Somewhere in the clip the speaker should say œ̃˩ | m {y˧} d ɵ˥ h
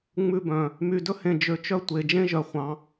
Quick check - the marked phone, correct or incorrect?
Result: correct